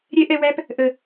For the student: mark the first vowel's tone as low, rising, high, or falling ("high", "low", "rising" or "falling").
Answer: high